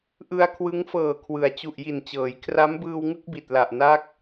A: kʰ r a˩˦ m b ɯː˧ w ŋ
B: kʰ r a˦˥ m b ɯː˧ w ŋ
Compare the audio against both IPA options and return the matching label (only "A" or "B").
B